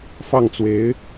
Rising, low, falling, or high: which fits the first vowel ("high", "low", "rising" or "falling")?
falling